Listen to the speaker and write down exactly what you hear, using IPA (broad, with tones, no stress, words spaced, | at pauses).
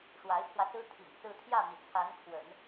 ʂwa˧˥ɪ̯pʰwä˧sɹ̩˥ t̪ʰḭ˨˩ŋ sɹ̩˥˧ t̪ʰjä˥˩mi˩ t͡sʰa˧˥nkʰwə̰˨˩˦n